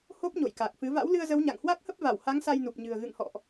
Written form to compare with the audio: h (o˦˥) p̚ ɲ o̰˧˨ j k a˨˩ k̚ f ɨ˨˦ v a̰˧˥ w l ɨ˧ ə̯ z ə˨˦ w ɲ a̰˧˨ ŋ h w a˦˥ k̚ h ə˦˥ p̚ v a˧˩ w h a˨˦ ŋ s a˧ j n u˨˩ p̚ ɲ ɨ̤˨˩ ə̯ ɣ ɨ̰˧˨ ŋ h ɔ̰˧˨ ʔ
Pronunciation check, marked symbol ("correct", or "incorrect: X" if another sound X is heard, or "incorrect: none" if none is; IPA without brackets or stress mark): correct